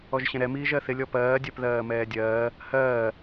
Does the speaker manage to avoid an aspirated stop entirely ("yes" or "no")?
yes